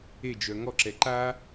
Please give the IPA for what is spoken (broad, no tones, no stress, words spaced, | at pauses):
ed͡ʒœ ŋɔǁɛ ǃa